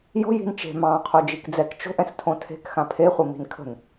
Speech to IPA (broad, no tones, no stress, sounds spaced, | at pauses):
j o̤ j i̤ n t͡ʃ e̤ m ɑ̃ qʰ o d͡ʒ i k d͡z ɛ k t͡ʃ o̤ ʔ ɛ̃ s tʰ õ tʰ e̤ k x ã pʰ e χʷ ə m i̤ n kʰ ə̤ n